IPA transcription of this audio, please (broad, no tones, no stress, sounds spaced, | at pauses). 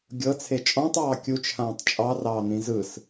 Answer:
ɡʲ ɤ t͡sʰ e t͡ʃʼ ɔ̃ tˤ ɑː kʲ u t͡ʃʰ ãː tˤ t͡ʃʼ ɑ r ɑː n̪ ĩ z ɯ s